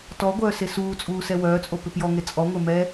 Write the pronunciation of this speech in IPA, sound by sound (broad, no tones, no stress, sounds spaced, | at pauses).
t ɔ ɡʷ œː s e s uː t͡sʼ uː s ɛ w œː t͡sʼ o p ʏ p j ɔ ŋ e t͡sʼ ɔ ŋʷ e m ɛ